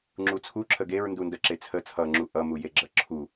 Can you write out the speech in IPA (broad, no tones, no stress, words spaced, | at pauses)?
ŋ͡ǁut͡sʰu ǁʰəɡeɹ ndundəǁe t͡sʰə t͡sʰʌŋ͡ǁu ʔʌmujeɡ͡ǁʌ ǁʰu